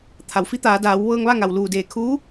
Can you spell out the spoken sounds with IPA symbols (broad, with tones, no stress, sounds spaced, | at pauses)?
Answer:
t̪ʰ a˩ w f i˧˥ t̪ aː˩˧ d aː˩˧ w ʋ ɤː˧ ŋ ʋ a˥˨ ŋ a˩ w l uː˧˩ d eː˧˩ kʰ uː˧˥